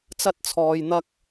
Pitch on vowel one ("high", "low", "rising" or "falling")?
high